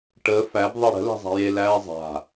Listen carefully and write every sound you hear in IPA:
ʈ əː f æ b ðˤ e ɽ ə̤ l æ̤ zˤ a̤ j e l æː zˤ a̤

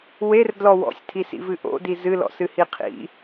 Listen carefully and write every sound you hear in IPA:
w e r d l ɔ w ɔ̰ sʲ tʰ i s ḭ v ɨ ʔ o̰ d i z ɨ l ɔ̰ s ɨ h i qʰ ḭ

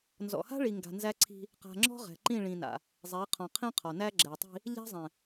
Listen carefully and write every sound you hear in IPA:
n z ɔ̰˨ h a̤˦ ɭ i˨ ŋ ɡ a̤˨ n z æ˦ ǀʰ i̤˦ | q a̤˨ ŋ͡ǁ ɔ̤˦ ʁ ɛ̤˨ ǃ ĩ˦˨ ɭ ĩ˨ n a̰˨ | zˤ ɛ˨˦ qʰ ɔ̃˨ qʰ ĩ˦ qʰ ɔ˨ n æ˦ ɡ͡ǁ ɛ˨ tˤ i̤˦ | ʎ æ̤˦ zˤ ɛ̃˨

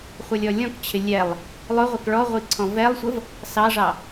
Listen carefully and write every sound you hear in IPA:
χʷ ʌ lʲ ɔ lʲ ɔ̃ k t͡ɕʰ ɪ lʲ ɛ lˠ | lˠ ʊ ʁʷ ə k ɭ ɔ ʁʷ i ǀʰ ɔ̃ v ɛ lˠ sʷ ə v | s ɑ ʐ ɑ

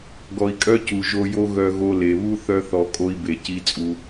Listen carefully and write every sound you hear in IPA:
ɡ ɔ˨ i̯ kʼ œ˦ c u˨ ʒ o˧ j o˦ ɣ œ˦ ɣ o˦ l e˨ β u˦ θ œ˦ θ ɔ˧ kʼ o˦ i̯ b e˧ c i˦ t͡sʼ u˧

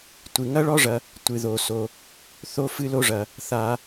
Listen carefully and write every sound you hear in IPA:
tʷ ɨ˩ ŋ ɐ˥ ɭ ɔ˥ ʐ ɐ˨ | tʷ ɨ˩ ð o˩ s o˩ | θ o˦ f ɨ˦ l o˦ ʐ ɐ˩ | θ a˨

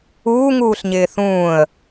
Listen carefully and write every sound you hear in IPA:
uː ŋ uː ɬ ɲ ɪː θ ũː ə̯

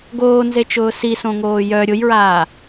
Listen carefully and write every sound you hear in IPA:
ɡ oː n z e t͡ʃ ʊː s i s õ ŋ oː j œ ɾʲ ʊ j ɹ aː

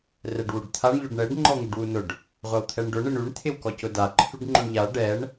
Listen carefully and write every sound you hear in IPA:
r ɛ ɖ w u ɖ t̪ʰ a ɳ ʎ ʊ ɖ ɳ ɛ ɖ ŋ͡ǃ ɔ ŋ u ɖ w u n ʊ ɖ | ʁʷ a w t̪ʰ ɛ ɳ ɖ ʊ ɳ ɪ ɳ y ɳ t̪ʰ ɪ w k ɔ c ʊ d a ǃʰ y ɖ ŋ͡ǃ ʊ ɳ ʎ a ɖ ɛ ɳ

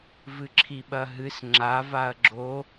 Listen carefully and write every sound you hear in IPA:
v ɨ ǁʰ i ɓ ɐ ɦ ɨ s ŋ͡ǁ a v a ɐ̯ ɡ͡ǁ o

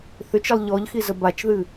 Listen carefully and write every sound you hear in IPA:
θ ʏ t͡ʃ e lˠ ʎ ɔ ʎ x i z ə b a t͡ʃ ð ɨ

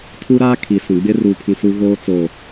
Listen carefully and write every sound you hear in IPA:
tʰ u˦ ɾ aː˦ kʰ i˨ s ũ˨ ɡ͡b ɪ˦ r u˦ pʰ ĩ˦ s u˦ ɣ oː˦ t͡s o˨

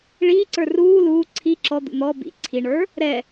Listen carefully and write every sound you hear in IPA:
ɭ iː ǀ ə˞ r uː l uː ǀʰ i ǁ ɔ d̪ ṵ n̪ ɔ b ḭ ǀʰ i ɳ ə˞ | ɾ ɛ

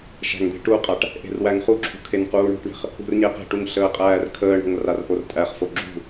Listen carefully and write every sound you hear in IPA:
ʃ æ̤ ŋ d̪ e̤ ʈ u qʼ a ʈ | ʔ e̤ r w æ ŋ χ u ǁʰ ṳ kʰ e n q uː ɳ o̤ ʈ ɳ e̤ χ | ṳ r ɲ e q e̤ ʈ u ŋ ɬ əː qʼ æː r kʰ əː ɳ o̤ ŋ r a r ʔ o r tʼ æ χ f o ɡ͡ǁ ṳ

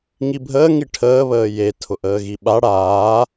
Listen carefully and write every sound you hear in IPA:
ŋ i bʱ əː ŋ i ʈʰ əː β əː j e tʰ ʊ ʔ əː ɣ i ɓ a ɽ aː

